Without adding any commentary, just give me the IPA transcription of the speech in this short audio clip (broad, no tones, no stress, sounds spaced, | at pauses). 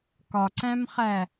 k ɒ ǀ æ̃ m χ æ